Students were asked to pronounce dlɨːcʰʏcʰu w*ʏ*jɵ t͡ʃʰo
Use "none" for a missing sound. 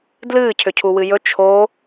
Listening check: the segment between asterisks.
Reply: ɨ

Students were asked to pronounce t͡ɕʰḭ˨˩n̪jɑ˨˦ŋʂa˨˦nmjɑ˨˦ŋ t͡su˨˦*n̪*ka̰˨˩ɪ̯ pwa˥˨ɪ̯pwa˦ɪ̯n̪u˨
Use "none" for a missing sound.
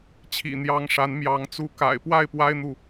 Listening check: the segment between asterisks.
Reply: none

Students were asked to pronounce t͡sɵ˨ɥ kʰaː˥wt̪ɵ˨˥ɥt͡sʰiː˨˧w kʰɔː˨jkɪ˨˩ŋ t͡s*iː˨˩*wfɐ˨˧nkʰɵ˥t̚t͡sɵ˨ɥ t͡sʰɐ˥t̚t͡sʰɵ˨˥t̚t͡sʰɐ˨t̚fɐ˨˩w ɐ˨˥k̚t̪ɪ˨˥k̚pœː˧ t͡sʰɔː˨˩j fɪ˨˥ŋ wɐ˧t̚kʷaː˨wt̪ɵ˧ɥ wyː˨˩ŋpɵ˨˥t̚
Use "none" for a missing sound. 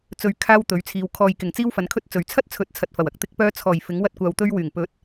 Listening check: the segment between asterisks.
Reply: iː˥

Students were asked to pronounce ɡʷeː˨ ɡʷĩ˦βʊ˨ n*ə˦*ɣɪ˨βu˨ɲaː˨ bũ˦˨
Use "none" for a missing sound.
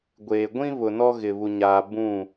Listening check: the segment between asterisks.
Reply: ɔ˦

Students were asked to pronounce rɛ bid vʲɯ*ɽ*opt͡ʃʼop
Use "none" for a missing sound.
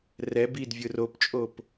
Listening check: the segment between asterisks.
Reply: r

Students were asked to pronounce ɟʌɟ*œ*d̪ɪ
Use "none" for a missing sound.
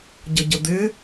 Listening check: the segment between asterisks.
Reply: ə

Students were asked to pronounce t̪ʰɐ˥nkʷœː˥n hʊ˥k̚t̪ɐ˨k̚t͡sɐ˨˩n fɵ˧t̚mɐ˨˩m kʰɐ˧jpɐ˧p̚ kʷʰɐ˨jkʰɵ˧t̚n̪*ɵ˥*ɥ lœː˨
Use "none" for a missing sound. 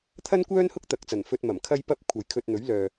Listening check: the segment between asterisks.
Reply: ɵ˨˥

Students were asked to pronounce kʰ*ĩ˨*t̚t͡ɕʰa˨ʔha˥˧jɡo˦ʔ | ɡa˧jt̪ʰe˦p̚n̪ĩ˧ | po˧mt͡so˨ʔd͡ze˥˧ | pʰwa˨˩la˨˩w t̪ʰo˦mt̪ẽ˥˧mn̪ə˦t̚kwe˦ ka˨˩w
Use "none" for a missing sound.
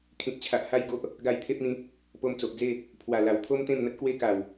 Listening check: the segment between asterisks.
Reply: ĩ˨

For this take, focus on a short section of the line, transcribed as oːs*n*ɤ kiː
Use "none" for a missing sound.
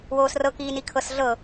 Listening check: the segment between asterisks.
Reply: r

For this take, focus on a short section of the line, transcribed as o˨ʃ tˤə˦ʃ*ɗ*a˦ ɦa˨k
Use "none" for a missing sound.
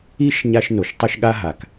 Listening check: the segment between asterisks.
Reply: ɠ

